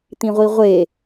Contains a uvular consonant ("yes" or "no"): yes